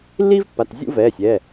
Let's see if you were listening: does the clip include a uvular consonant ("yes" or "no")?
no